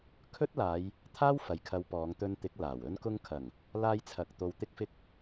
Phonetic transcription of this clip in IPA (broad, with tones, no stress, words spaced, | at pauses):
kʰɵ˥t̚laː˨˧j | t̪ʰaː˥wfɐ˨jkʰɐ˨˧w pɔː˨˧ŋ t̪ɵ˧nt̪ɪ˨˥k̚laː˨˩w ɵ˧nkʊ˧ŋkʰɐ˨˩ŋ | laː˧jt͡sʰɐ˨k̚t̪o˨w t̪ɪ˥k̚fɪ˥k̚